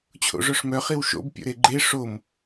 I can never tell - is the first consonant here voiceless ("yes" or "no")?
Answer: yes